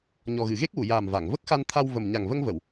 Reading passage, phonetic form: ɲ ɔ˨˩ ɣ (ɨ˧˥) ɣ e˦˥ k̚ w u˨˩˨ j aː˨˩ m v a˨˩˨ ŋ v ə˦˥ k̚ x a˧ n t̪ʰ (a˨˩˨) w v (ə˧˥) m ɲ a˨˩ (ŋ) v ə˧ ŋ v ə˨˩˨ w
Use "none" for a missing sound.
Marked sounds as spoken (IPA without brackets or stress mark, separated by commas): ɨ˨˩˨, a˧, ə˨˩, ŋ